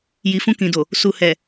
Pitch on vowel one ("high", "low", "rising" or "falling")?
low